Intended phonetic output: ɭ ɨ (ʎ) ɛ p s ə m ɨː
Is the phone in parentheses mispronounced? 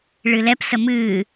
yes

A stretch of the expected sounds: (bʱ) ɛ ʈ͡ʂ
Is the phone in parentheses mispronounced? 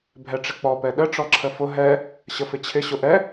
no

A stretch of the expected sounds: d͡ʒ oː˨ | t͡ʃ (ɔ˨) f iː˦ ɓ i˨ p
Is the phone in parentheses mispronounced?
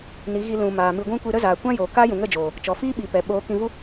no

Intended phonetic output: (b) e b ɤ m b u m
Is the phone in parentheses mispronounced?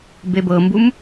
no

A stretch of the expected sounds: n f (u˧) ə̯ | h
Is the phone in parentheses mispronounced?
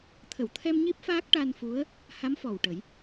yes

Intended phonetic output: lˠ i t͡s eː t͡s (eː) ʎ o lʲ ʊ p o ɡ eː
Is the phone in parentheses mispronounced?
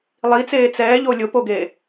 yes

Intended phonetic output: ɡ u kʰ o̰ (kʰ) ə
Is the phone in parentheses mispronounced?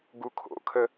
no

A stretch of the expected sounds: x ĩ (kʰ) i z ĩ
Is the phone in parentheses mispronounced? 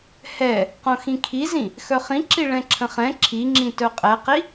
no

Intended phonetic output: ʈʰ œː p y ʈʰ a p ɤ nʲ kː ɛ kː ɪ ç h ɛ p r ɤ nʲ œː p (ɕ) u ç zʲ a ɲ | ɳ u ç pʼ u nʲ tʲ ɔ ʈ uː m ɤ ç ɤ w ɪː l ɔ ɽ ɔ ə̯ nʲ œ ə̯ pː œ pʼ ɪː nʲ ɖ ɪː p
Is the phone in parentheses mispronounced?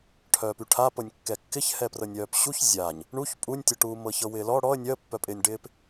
no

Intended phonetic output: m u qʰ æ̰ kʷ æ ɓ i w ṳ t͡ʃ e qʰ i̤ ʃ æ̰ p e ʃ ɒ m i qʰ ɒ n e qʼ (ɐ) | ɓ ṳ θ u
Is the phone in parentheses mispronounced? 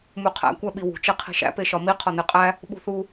yes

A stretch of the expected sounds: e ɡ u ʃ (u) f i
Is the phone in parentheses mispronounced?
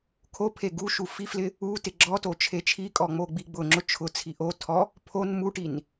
no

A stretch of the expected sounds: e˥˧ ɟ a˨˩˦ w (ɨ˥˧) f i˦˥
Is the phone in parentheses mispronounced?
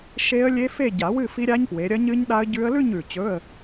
no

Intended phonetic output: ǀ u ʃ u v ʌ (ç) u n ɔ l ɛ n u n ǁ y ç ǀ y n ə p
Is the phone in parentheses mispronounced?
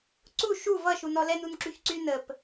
yes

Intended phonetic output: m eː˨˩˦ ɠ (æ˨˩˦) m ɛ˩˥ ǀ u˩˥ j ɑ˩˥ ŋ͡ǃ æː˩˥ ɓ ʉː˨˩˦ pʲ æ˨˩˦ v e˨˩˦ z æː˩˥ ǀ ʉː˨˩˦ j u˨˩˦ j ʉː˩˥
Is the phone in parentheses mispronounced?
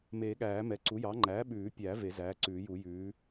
yes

